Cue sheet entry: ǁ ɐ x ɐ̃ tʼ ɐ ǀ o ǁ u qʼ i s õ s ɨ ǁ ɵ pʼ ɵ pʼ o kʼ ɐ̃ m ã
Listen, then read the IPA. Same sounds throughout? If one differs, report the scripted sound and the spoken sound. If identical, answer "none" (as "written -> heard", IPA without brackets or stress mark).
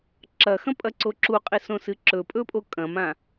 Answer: tʼ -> pʼ